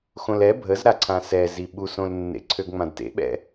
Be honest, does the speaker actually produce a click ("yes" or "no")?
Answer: yes